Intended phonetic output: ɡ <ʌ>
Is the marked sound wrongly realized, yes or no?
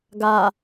yes